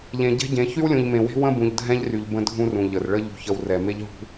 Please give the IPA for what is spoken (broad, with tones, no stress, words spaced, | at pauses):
ʎẽ˨ɟɛ̤˦ɟẽ˨˦ çy˦wlʲũ˨ʎmẽ˨we̤˦ wə̃˦bũ˨ʎ dʱɛ̃˦ʎry˨ʎ bə̃˦dʱũ˦rũ˨ ʎə˨r ɭə˦ ʎṳ˨çə˨w rɛ˨ me˦ʎɦṳ˦